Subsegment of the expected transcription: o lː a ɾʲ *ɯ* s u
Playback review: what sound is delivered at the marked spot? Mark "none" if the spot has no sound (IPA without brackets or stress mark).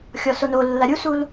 u